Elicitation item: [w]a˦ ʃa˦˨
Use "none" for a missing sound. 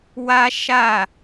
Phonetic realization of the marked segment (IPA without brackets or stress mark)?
w